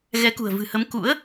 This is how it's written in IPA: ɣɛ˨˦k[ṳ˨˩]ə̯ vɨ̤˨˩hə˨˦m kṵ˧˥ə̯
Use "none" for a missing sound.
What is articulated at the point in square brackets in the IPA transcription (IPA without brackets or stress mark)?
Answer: ṳ˨˩